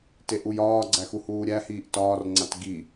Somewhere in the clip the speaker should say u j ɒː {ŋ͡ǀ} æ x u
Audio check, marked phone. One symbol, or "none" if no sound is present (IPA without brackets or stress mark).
ɡ͡ǀ